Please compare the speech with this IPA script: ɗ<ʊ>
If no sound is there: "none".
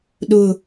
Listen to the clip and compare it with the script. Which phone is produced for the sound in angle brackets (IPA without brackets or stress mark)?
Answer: ʊ